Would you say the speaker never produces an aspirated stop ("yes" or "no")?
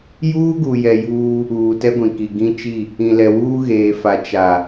yes